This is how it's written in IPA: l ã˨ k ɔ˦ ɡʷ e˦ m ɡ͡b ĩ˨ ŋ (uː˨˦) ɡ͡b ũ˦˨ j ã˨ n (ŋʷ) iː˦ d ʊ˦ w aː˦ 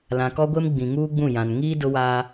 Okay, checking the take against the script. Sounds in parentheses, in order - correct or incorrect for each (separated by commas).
incorrect, incorrect